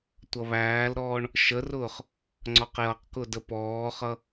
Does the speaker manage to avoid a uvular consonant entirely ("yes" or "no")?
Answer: no